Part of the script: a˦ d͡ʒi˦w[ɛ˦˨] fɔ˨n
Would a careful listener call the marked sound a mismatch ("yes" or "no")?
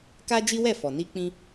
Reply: no